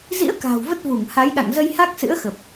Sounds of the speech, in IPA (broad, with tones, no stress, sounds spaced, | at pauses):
z ḭ˧˥ ə̯ k a̤ː˨˩ w v ə˦˥ t̚ v u˧˩ ŋ h a˨˦ j ɗ a̰˧˨ ŋ z ə˧ j h a˦˥ k̚ s ɨ̰˧˥ ə̯ x ə˨˩ p̚